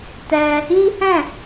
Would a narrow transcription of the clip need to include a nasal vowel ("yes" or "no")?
yes